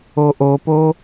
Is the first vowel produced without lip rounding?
no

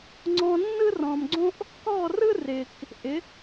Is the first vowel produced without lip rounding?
no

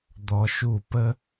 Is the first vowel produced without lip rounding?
no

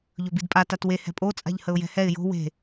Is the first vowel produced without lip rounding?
no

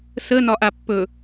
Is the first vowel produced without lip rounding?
yes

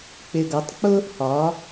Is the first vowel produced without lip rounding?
yes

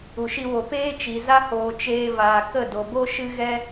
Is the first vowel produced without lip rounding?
no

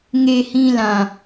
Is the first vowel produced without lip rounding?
yes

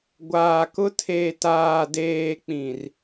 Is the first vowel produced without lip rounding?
yes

